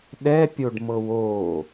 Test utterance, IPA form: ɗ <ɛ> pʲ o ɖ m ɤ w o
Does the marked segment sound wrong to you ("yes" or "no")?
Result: no